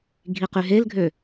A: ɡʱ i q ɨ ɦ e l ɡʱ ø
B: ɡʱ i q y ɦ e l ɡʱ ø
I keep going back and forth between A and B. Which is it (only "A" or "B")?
B